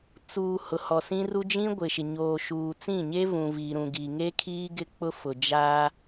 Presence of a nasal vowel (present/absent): present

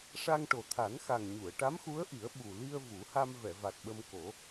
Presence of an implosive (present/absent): present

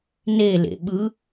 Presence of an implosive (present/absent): present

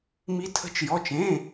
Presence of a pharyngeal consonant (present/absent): absent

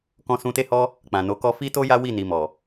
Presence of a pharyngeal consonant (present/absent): absent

